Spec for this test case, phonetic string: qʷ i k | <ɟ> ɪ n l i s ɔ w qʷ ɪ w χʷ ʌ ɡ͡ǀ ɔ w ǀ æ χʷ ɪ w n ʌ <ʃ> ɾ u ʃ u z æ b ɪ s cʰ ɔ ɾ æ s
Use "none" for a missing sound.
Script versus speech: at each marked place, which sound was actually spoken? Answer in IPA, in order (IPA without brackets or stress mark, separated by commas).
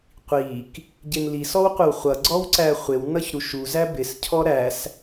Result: ɟ, ç